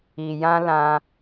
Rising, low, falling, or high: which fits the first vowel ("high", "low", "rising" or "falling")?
low